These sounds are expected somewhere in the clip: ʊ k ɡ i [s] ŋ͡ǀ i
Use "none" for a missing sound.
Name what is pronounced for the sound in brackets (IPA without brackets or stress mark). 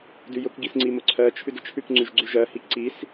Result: s